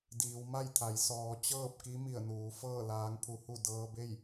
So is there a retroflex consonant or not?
no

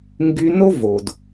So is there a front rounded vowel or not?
yes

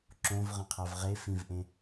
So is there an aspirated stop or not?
yes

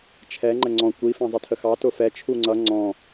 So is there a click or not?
yes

